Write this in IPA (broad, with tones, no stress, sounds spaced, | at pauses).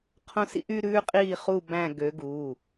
qʰ õ˥ s ḭ˥ ʔ y˥ ɾ ʉː˥ qʼ iː˥˧ χ u˥˧ b æ̃˥˧ ɡ ø˨˦ ɡ u˩˧˩